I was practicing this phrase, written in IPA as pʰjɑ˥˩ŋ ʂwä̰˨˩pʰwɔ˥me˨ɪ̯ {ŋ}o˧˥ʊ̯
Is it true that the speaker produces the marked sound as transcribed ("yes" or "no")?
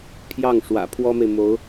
no